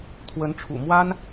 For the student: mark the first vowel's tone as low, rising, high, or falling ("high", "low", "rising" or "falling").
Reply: rising